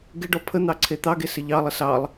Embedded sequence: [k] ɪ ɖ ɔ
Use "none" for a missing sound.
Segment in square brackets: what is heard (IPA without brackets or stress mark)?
ɡ